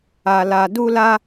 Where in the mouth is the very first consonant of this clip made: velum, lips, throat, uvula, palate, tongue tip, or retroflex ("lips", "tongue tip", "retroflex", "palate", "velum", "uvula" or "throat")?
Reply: tongue tip